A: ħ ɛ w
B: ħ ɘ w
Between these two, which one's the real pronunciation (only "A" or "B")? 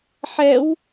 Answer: A